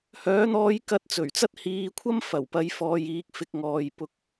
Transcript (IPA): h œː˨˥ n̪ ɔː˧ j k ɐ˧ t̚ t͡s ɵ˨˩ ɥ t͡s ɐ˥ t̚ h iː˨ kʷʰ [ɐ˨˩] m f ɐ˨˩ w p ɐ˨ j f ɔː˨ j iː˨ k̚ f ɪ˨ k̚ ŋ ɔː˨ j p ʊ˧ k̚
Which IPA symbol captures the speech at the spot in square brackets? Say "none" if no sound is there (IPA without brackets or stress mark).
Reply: ɐ˥